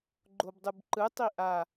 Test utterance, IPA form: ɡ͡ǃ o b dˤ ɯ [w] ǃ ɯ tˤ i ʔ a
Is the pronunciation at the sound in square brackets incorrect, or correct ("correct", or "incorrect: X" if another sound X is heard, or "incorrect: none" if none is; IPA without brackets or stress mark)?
incorrect: b